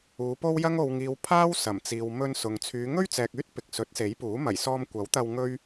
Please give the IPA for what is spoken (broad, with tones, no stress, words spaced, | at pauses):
uː˨˧po˥wjɐ˥ŋ o˨wŋiː˨w pʰaː˥wsɐ˨˩m t͡siː˨wmɵ˧n sʊ˨ŋ t͡sʰyː˨˧ ŋɵ˥ɥt͡sɛː˨k̚yː˥t̚ pɪ˨k̚sɵ˨˥t̚se˨˥jpuː˨˥ mɐ˨˩jsɔː˧mkʷɐ˨˥wt̪ɐ˧w ŋɵ˥ɥ